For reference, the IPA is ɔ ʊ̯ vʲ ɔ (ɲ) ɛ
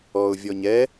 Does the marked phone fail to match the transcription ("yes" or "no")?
no